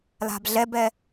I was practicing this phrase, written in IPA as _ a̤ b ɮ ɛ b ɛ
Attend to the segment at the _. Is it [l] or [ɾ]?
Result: l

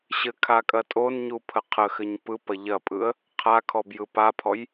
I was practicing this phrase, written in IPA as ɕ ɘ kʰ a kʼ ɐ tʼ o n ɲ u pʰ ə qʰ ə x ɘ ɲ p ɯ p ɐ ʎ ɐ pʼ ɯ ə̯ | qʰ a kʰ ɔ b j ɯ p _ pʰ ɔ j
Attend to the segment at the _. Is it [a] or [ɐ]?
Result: a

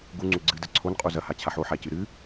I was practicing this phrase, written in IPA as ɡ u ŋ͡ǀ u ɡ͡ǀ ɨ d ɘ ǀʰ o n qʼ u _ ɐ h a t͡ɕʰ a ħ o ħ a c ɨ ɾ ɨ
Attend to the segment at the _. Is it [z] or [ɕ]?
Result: z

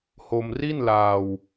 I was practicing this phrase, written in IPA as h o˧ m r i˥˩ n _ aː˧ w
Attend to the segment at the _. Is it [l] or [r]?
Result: l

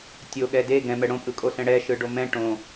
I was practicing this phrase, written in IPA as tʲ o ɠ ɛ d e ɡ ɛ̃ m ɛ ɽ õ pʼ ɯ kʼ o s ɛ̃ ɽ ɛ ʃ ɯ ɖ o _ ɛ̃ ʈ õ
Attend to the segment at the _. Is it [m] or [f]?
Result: m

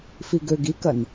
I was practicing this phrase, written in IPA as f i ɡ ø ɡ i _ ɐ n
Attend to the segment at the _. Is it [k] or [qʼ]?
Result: k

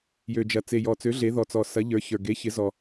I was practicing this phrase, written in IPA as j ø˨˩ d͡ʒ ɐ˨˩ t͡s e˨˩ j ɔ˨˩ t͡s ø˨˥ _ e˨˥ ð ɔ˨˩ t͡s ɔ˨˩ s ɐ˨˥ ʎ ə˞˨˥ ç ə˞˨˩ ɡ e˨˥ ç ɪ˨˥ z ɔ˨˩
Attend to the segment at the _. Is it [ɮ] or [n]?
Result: ɮ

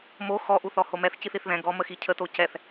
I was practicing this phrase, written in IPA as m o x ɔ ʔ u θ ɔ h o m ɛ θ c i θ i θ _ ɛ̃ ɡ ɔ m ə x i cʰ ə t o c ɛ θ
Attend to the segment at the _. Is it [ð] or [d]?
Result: ð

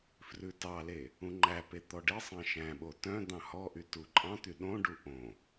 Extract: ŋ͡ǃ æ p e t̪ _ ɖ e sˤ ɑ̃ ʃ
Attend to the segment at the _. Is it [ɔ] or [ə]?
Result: ɔ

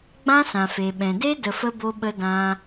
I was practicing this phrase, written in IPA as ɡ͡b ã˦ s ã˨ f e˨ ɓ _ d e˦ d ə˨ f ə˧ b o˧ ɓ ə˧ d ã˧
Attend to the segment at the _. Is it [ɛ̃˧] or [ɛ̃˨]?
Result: ɛ̃˨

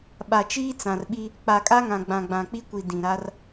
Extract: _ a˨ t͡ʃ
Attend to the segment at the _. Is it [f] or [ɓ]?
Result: ɓ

